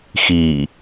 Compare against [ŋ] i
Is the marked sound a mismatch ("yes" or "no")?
yes